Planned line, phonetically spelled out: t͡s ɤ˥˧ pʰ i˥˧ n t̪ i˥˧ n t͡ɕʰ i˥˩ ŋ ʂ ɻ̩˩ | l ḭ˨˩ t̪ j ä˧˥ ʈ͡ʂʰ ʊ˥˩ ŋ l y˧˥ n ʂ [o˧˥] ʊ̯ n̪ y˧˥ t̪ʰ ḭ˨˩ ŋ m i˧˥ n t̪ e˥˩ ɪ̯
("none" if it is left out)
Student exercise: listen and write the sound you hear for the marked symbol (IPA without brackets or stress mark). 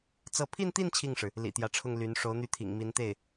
o˧˥